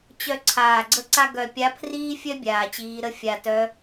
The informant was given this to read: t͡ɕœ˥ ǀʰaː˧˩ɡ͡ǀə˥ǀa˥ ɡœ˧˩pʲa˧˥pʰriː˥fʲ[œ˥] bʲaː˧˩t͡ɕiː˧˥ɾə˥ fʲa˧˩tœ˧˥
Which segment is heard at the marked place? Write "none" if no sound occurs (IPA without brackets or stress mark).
œ˥